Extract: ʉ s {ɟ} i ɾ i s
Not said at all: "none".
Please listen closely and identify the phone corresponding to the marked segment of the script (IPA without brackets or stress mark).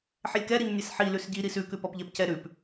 ɟ